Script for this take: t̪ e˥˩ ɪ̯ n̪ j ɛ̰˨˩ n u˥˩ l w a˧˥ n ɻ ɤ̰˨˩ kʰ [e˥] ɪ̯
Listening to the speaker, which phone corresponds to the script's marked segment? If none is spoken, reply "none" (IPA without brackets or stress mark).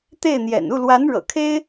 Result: e˥